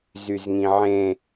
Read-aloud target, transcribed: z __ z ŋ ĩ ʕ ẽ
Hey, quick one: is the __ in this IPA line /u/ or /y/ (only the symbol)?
y